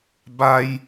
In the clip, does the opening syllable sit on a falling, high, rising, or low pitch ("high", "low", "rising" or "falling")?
high